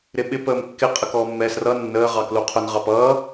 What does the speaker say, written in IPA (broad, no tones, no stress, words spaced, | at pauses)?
ɾɪɓɪ pəːmkːɪ qʼəkɔːmːɛːsrʌ nːəː ʁɑkluqʰʊn ʁɑpʌː